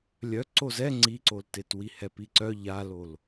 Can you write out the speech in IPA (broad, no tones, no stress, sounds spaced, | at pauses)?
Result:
lʲ œ ǀ o z ɛ ŋ͡ǀ i ǀ o l t e t w i h ɛ p i ǀ œ ʎ a l o l